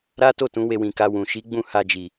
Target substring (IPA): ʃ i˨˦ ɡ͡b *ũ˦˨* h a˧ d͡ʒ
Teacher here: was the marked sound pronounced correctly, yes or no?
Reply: yes